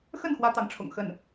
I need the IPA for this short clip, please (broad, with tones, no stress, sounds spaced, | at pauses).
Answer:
x ə˥˩ n x w ä˥ t̪ ɑ˧˥ ŋ ʈ͡ʂʰ ʊ̰˨˩ ŋ x ə˥˩ n